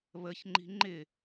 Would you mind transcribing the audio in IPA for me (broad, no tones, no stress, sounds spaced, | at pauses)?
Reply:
β ə ç ŋ͡ǃ i̤ ŋ͡ǃ ɪ